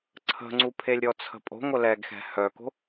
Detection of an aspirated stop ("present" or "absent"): present